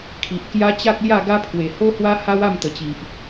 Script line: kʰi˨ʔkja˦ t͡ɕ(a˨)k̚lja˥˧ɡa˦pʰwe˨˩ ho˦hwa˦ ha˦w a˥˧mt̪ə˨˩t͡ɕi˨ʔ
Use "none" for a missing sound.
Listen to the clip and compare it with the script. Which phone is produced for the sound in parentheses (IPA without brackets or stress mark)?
a˦